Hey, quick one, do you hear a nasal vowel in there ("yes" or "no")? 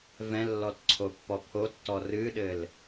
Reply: yes